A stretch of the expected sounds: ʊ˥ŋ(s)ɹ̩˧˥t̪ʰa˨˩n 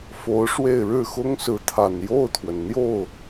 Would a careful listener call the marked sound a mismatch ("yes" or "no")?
no